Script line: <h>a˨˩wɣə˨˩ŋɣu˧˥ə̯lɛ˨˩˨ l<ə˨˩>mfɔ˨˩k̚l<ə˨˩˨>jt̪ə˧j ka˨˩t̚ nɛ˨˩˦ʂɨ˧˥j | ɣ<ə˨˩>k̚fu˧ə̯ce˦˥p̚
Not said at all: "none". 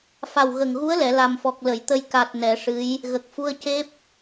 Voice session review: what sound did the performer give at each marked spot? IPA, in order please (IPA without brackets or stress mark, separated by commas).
f, a˨˩, ə˨˩˨, ə˨˩